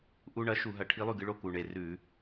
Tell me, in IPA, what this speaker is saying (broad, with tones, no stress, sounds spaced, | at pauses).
ʔ u˧ ɳ ɐ˩˥ ʃ u˧˩˧ ɦ ɐ˧˩˧ ʈʰ i˧˥ lˠ ʉ˥˩ ɡ ɨ˧ ɭ o˥˩ k u˨˩ ɳ e˨˩ r ʉ˧˩˧